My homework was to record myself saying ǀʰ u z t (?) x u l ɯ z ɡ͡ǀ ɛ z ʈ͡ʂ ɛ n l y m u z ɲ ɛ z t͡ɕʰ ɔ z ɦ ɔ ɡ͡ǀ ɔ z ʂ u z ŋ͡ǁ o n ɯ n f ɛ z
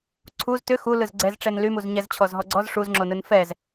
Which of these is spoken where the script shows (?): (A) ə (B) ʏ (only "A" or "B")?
B